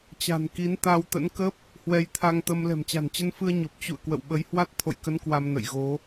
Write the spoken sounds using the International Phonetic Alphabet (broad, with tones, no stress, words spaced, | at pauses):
t͡ɕa̤˨˩nki˨˦n t̪a˧wt̪ə̰˧˥n kə˦˥p̚ | hwɛ˧jt̪ʰa˧ŋt̪ə˧m lɛ̤˨˩mt͡ɕa̤˨˩nt͡ɕə˧nfɨ˧ə̯ ɲo˨˩p̚t͡ɕṵ˧˨ə̯ kwə̰˧˨wɓə˨˦jhwa˦˥t̚ t̪ʰo̰˧˨jkə˨˦n kwa˧mnə̰˧˨jɣo˨˦